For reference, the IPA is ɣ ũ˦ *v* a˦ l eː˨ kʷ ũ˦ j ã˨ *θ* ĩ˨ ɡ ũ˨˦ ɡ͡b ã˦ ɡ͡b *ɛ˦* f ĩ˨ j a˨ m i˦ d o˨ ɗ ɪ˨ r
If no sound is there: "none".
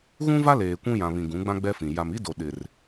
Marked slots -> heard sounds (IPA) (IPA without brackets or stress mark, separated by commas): v, β, ɛ˦